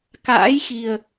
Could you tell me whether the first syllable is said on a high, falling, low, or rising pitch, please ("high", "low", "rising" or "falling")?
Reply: rising